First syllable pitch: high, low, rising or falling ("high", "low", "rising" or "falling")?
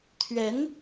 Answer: rising